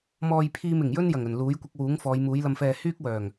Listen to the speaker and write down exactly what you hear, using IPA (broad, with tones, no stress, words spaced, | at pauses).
mɔː˧jpʰiː˧m ɪ˨˩ŋjɵ˥njɐ˨˩ŋɵ˨˩n luː˨˥jkʷɪ˧k̚wuː˨˥ŋ fɔː˨˧jmuː˨˥jlɐ˧mfɛː˧ hyː˥k̚wœː˨˩ŋ